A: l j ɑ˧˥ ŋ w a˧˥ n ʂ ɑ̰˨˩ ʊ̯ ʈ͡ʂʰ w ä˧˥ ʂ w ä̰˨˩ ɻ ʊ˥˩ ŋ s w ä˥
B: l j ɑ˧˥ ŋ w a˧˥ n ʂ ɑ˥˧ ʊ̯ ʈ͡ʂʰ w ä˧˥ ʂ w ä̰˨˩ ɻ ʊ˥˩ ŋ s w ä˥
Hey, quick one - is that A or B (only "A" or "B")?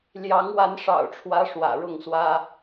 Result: A